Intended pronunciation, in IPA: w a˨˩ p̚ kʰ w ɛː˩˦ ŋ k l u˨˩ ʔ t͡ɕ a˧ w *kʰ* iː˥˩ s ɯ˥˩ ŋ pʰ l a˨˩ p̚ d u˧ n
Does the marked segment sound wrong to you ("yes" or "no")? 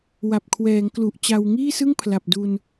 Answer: yes